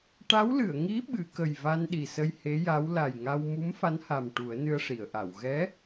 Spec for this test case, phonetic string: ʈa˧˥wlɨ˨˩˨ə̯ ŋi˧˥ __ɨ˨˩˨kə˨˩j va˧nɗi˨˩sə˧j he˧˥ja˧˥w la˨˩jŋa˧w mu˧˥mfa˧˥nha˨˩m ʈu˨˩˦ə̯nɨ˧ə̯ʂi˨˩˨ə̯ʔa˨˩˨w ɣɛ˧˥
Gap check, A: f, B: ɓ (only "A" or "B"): B